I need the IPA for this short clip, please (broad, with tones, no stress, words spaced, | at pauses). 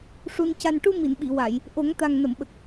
ʂu˧n ca˨˩nʈu˧ mi˨˩˨nɓi˨˩˨wa˨˩˨j | ʔo˨˩˦ŋt̪a˨˩ŋnə˨˩˨mɓə˨˩k̚